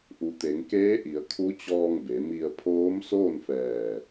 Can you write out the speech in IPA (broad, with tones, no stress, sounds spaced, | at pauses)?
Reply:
ʔ u˩ t̪ e˩˧ ŋ k eː˧˥ ʔ i˩˧ ə̯ kʰ u˧˥ t͡ɕ ɔː˧ ŋ b e˩˧ m i˧ ə̯ pʰ oː˧˥ m s oː˥˨ n f ɛː˧˩